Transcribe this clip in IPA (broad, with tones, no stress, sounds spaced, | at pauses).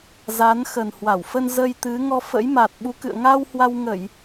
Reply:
z a˨˦ n x ə˨˩ n h w a˧˩ w f ə˧ n z ə˧ j t̪ ɨ˨˦ ŋ ɔ˧ f ə̰˧˥ j m a˨˩ t̚ ɓ u˨˦ k ɨ̰˧˨ ə̯ ŋ a˧ w h w a˧ w ŋ ə˧˩˨ j